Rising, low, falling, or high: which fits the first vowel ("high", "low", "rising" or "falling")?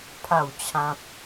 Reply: falling